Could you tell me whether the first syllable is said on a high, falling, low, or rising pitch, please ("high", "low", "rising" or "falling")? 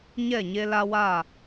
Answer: falling